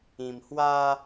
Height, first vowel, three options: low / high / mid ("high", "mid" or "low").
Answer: high